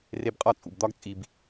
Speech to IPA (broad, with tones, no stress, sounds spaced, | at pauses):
r e˧ b qʼ ɒ˦˨ t͡sʼ ṵ˨ b d̪ ɒ˦ ɡ t͡sʼ i˧ b